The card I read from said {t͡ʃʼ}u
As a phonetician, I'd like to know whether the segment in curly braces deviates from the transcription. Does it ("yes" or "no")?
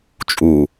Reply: no